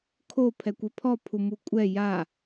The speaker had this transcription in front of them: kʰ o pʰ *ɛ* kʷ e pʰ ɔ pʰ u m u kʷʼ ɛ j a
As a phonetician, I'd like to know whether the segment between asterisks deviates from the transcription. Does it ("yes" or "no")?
no